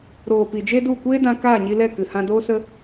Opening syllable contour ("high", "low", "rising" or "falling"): low